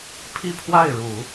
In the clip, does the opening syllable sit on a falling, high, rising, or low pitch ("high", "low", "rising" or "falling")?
falling